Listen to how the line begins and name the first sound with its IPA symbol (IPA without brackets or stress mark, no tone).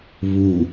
β